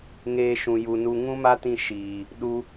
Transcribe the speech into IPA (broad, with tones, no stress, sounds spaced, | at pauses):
ŋ eː˧ ʃ ũ˨ j u˨ n u˧ ŋ ũ˦ m a˦ t ĩ˧ ʃ iː˨ | ɗ u˧